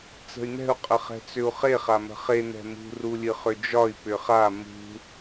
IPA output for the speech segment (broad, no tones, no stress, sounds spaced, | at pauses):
t͡s ə̤ y̯ n̪ ɛ̤ u̯ qʼ ə χ ɛ̤ t͡s ʏ u̯ χ e χ a m ə̤ χ e n̪ ɛ̤ m ṳ r u lʲ ɨ χ ʏ d͡ʒ ɒ i̯ p ʏ χ a m ṳ